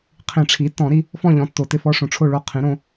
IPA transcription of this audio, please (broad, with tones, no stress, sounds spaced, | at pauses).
qʰ ĩ˨˩˦ ʈ͡ʂʰ i˩˥ tː ɔ̃˨˩˦ ɾ i˦ | f ɔ̃˥˨ ʎ ɔ̃˩˥ tː o˩ t ɪ˥˨ f ɔ˦ ʂ õ˩ ʈ͡ʂʰ o˥˨ ɭ o˥˨ qʰ ĩ˩˥ ɾ õ˦